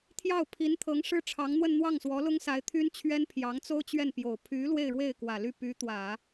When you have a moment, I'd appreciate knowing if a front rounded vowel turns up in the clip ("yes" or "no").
yes